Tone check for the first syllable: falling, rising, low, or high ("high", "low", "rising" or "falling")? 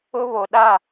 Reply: high